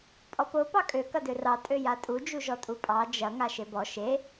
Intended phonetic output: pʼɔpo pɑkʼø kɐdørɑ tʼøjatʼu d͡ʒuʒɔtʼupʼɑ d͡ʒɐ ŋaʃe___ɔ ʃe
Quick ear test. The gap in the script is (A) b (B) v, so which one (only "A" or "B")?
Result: A